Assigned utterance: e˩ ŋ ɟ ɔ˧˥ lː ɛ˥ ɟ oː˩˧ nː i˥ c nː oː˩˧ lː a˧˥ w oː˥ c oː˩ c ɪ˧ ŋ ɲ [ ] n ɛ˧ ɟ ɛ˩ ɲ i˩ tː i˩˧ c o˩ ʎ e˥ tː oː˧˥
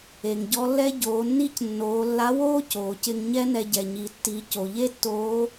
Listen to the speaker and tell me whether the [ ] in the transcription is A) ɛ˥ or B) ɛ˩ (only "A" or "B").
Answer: A